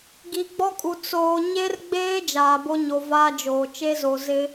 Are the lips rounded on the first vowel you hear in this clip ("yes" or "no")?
no